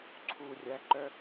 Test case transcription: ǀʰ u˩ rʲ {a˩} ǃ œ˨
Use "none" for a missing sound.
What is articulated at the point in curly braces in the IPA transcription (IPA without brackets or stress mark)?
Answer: æ˩